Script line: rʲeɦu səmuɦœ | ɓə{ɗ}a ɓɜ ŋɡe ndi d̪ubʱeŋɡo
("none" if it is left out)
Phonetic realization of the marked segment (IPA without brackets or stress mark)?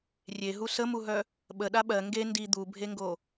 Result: ɗ